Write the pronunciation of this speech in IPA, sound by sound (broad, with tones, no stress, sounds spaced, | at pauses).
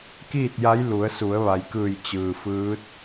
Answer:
k iː˥˨ t̚ j a˧˥ j l u˩˧ ə̯ s u˩˧ ə̯ ʋ a˩ j k ɯː˧˩ j t͡ɕ ɯː˩ f ɯː˧˥ t̚